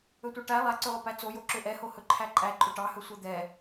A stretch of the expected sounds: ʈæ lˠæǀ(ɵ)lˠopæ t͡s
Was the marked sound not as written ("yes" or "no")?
yes